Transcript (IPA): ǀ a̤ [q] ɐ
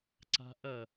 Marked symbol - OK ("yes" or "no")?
no